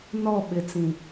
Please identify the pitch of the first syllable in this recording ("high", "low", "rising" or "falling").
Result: falling